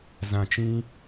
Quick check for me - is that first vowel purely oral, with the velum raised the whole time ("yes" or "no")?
no